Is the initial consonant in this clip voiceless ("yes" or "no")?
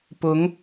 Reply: yes